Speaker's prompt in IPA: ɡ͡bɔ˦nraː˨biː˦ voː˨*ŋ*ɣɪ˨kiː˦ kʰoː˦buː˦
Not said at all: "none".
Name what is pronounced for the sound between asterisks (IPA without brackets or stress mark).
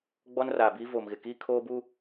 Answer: m